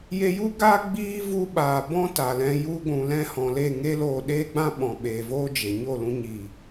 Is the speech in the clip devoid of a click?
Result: yes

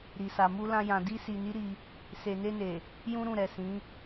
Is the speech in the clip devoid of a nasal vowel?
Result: no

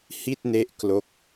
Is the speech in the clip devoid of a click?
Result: yes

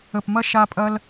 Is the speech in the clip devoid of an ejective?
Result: no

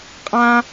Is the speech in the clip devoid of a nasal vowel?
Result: no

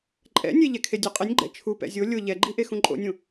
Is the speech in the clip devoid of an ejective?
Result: no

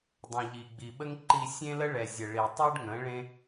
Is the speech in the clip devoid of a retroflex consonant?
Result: no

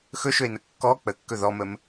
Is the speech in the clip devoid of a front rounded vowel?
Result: yes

